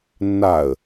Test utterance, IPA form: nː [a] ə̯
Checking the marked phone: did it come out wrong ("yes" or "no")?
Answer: no